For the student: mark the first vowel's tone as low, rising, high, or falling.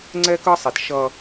high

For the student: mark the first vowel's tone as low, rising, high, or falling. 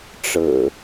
low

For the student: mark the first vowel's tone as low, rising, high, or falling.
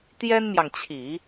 high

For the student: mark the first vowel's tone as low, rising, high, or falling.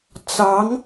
rising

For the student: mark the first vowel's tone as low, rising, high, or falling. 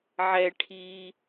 high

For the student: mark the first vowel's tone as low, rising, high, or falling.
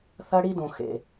high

